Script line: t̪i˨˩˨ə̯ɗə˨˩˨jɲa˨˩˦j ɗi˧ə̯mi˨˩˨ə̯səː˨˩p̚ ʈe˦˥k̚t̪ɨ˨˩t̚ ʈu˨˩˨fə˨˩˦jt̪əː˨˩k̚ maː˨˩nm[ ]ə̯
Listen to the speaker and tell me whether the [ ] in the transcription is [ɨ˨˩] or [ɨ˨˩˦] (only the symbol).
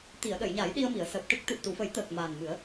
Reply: ɨ˨˩˦